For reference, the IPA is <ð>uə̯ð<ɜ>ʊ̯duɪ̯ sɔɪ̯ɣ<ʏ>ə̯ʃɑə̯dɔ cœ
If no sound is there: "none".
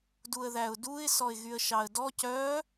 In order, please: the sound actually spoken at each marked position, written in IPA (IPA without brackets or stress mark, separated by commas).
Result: d, æ, y